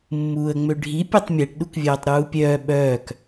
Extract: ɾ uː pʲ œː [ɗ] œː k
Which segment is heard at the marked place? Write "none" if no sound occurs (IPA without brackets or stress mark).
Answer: ɓ